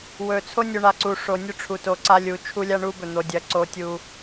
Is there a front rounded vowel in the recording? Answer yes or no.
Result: no